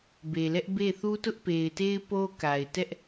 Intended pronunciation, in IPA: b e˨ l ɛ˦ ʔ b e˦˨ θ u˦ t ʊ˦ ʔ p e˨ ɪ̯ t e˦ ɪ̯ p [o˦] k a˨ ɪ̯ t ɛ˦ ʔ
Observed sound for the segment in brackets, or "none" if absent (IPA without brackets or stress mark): o˦